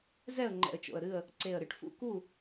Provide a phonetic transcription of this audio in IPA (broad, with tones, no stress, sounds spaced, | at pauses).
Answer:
z ɛ˦˨ ə̯ ŋ͡ǃ ɛ̰˨˩ ə̯ t͡ʃ o̰˨˩ ə̯ ɾ ɨ˦˨ ə̯ | ǀ e˨˩ ə̯ ɾ ɨ˨˩ ʈ f ṵ˦˨ k u˦˨